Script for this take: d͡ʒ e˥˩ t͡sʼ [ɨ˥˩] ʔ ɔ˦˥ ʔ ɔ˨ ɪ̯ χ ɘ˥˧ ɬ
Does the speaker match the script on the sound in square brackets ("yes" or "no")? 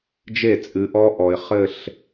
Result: no